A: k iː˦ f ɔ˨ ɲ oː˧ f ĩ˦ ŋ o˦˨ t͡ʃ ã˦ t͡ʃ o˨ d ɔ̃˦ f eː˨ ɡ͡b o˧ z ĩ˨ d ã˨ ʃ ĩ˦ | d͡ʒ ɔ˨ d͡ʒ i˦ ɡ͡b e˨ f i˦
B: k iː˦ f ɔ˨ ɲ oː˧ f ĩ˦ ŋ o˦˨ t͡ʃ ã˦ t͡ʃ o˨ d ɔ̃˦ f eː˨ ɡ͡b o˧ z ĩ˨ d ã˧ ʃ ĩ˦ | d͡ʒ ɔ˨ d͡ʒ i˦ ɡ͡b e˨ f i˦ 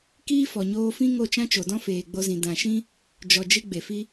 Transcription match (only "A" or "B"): A